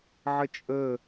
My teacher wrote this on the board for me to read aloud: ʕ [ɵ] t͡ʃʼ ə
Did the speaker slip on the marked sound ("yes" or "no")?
yes